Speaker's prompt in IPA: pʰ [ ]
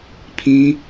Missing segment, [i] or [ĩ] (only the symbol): ĩ